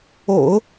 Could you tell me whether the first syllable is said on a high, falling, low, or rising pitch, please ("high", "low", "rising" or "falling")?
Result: low